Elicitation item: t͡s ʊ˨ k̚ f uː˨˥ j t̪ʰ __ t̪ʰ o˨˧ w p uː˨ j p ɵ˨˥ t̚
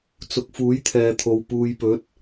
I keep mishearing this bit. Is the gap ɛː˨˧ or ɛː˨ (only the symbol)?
ɛː˨